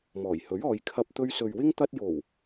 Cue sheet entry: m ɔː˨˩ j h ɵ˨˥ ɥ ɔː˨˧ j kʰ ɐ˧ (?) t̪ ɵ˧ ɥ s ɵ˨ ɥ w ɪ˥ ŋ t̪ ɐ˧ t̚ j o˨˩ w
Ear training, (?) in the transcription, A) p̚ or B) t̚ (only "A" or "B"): A